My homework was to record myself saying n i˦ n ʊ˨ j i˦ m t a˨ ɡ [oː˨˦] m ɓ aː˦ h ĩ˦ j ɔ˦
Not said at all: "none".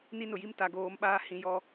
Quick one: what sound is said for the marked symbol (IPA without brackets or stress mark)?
oː˨˦